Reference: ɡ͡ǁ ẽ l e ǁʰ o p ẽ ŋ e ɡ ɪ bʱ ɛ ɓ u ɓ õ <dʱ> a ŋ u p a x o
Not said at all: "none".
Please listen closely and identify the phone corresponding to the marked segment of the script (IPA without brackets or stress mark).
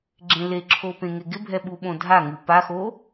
dʱ